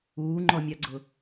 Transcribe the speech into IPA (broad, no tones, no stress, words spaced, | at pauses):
uːŋ͡ǃɔmʲaɡ͡ǀʊ